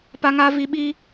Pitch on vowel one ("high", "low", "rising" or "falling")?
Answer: high